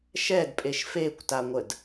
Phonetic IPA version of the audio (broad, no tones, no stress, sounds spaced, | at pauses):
ʃ ɛ d pʼ e ʃ f e kʷ t a ŋʷ ə d